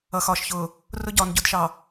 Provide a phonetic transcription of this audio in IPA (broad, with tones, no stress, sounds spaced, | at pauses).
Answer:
ʌ˨ x ɒː˨ ʃ ç ʊː˨ | r ʊ˦ ɟ ɒː˨ n ɟ ʊ˦˨ d ʃ ɑ˨